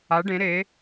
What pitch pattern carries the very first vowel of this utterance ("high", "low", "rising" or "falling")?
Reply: rising